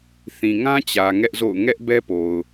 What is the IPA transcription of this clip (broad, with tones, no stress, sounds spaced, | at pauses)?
θ ĩ˨ ŋ ã˦ t͡ɕ ä˨ ŋ ɛ˦ ʔ z o̰˦˨ ʊ̯ ŋ ɛ˦ ʔ b ɛ˦ p o˨ ʊ̯